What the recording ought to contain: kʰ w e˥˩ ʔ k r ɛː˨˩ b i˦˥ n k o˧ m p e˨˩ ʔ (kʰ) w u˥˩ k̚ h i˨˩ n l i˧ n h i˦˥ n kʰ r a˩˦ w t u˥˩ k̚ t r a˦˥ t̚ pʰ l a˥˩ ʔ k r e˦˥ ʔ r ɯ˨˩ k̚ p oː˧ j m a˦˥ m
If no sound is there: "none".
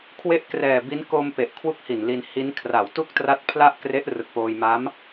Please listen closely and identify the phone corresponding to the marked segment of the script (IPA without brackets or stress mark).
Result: kʰ